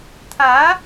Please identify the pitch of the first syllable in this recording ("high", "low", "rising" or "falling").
rising